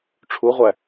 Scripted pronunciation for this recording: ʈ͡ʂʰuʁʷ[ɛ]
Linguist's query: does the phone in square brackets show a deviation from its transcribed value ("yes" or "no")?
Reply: yes